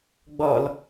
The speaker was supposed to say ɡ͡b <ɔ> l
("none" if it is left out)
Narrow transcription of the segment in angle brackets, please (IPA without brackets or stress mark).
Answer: ɔ